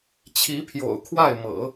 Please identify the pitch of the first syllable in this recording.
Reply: rising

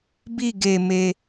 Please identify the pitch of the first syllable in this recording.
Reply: falling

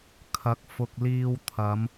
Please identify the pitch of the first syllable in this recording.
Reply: rising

